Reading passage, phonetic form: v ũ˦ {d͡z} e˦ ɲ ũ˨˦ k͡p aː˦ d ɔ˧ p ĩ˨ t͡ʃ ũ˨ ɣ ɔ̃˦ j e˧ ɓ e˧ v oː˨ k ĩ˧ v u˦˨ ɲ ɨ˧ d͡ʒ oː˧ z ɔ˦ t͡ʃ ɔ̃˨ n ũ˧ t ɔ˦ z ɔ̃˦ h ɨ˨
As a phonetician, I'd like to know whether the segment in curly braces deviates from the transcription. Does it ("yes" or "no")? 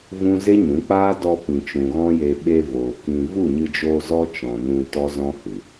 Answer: yes